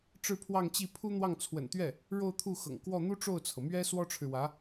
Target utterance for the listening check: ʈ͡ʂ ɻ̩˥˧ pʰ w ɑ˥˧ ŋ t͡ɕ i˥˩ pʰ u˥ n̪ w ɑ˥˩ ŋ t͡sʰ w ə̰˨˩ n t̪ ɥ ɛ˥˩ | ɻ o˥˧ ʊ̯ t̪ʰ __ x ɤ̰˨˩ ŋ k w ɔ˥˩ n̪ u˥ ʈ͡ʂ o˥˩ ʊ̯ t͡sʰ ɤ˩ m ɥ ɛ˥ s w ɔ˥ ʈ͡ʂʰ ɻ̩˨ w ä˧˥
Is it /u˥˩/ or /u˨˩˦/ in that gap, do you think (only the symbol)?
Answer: u˥˩